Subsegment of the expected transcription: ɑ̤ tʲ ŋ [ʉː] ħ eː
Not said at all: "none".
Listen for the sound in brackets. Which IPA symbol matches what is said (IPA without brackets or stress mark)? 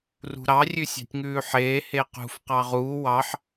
ʉː